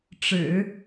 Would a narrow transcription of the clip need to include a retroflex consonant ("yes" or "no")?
yes